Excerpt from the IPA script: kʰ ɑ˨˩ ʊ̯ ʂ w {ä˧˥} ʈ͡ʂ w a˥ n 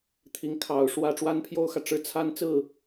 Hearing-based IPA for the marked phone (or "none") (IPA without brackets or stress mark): ä˥˩